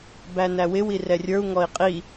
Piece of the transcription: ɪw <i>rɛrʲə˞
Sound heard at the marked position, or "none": i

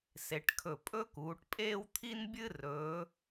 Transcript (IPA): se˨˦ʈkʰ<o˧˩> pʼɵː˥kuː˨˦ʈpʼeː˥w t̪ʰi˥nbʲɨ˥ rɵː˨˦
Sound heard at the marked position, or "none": ɵ˧˩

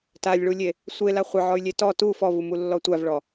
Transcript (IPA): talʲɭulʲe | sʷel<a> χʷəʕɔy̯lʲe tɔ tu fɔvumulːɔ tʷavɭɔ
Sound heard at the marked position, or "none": a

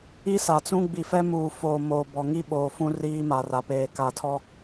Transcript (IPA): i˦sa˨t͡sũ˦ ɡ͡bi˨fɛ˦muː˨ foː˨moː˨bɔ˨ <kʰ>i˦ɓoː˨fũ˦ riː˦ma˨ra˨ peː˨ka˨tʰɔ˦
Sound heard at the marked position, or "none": ŋ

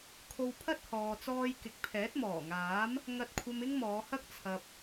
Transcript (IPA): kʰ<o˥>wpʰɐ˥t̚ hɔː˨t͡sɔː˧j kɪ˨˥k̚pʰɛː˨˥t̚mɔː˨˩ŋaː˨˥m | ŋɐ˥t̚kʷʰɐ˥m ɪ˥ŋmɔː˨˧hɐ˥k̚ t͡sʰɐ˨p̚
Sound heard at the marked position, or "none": o˧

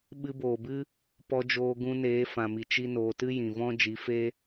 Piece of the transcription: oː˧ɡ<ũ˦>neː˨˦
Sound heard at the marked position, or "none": ũ˧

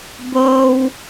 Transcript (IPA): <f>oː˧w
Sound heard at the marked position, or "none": b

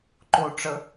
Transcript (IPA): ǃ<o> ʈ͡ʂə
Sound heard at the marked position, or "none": o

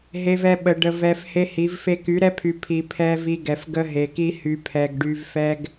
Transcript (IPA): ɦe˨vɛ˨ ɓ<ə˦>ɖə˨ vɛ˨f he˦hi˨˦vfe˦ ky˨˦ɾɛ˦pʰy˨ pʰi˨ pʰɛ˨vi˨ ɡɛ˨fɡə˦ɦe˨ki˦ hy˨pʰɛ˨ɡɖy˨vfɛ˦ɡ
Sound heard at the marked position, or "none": ə˨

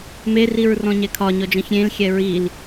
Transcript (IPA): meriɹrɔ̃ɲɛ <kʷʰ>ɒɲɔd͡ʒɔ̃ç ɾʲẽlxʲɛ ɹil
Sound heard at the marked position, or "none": kʰ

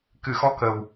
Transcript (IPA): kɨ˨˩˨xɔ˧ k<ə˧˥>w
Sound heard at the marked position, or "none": ə˨˩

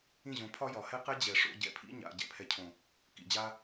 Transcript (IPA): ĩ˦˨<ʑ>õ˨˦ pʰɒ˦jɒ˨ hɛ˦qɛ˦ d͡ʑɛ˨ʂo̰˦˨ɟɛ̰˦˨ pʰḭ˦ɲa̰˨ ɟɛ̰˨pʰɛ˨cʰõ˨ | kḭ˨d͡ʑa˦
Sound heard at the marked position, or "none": ʑ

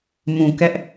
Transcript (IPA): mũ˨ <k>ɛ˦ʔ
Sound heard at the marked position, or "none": k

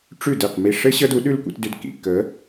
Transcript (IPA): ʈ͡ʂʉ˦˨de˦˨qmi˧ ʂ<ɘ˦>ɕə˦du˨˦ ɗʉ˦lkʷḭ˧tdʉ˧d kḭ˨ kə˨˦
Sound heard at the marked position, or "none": ɘ˦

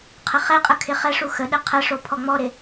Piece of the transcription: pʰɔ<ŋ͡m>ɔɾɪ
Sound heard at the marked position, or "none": ŋ͡m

